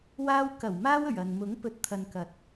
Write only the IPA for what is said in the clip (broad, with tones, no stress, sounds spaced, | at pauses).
w aː˧ w k ɐ˨˩ w m aː˧ w ɵ˨˩ ɥ ɐ˨ n m ʊ˨˥ ŋ p ɵ˨˥ t̚ t̪ʰ ɐ˨ n k ɐ˨ t̚